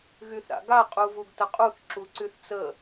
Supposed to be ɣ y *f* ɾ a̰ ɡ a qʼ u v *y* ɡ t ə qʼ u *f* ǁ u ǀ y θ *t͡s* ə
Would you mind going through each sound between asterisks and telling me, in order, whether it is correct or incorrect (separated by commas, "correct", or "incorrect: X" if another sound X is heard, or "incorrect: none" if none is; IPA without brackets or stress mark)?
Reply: incorrect: θ, incorrect: u, incorrect: θ, correct